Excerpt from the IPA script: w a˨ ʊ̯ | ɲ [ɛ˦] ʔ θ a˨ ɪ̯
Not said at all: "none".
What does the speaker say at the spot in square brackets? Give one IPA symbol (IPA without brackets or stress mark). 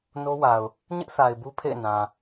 ɪ˦